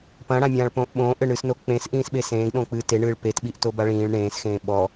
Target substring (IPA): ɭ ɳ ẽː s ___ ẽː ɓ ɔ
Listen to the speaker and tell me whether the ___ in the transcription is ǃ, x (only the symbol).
x